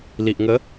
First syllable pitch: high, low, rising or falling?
low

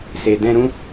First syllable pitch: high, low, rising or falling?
low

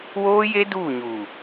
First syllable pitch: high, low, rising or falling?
high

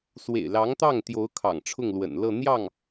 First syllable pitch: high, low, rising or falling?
low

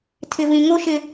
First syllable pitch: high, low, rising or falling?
high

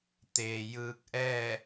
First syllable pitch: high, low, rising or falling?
low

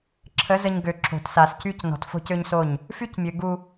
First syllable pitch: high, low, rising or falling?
rising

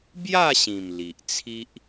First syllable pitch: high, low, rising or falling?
falling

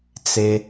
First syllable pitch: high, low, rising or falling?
low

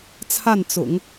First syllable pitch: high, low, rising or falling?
falling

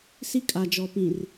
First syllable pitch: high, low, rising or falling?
high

